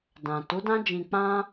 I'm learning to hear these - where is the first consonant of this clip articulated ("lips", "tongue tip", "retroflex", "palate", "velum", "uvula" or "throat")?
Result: tongue tip